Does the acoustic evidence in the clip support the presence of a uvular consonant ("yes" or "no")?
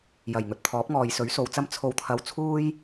no